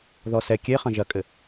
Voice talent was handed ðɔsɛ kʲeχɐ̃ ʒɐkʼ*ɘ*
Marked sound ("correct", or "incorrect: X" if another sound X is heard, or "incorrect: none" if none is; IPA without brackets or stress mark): correct